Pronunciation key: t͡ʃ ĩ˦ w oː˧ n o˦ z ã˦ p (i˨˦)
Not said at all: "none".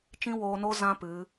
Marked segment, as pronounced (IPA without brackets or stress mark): ɨ˨˦